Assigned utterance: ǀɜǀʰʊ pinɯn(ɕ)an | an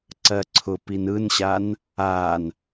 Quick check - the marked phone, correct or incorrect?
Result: correct